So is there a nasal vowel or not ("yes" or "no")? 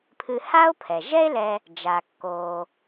no